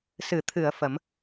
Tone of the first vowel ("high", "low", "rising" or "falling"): low